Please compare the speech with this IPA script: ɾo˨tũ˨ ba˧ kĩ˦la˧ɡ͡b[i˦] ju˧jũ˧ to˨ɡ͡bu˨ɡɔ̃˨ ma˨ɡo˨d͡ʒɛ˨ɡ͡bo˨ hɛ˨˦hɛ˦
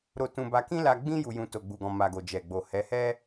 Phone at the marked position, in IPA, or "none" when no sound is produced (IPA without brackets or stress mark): ĩ˦